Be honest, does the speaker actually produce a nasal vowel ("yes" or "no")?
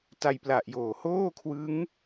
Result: no